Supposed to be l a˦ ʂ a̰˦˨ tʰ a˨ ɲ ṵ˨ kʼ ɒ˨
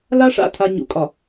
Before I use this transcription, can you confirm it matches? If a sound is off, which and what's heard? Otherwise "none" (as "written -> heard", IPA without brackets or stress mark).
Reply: none